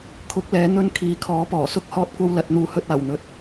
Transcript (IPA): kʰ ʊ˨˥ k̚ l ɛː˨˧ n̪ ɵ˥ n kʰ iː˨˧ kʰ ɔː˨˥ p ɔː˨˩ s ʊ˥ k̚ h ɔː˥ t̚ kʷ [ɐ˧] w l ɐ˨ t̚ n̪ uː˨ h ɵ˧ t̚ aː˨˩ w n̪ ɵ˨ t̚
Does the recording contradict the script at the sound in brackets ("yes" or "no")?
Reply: yes